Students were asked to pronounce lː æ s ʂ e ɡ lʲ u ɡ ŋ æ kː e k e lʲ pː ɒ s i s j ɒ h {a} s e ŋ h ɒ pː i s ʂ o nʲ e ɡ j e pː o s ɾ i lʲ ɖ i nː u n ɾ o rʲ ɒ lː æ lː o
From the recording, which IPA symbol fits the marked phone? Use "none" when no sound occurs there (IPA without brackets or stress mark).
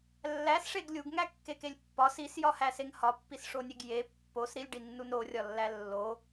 æ